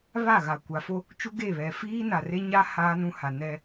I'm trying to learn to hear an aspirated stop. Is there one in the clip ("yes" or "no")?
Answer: no